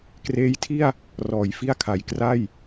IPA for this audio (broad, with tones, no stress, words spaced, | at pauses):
kreː˦˥jtʰi˥˩a̯ | rɔː˩˦jfi˥˩a̯ kʰa˨˩j kra˥˩j